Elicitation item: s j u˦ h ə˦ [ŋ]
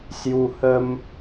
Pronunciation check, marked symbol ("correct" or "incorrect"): incorrect